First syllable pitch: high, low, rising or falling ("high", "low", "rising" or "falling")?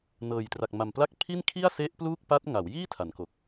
low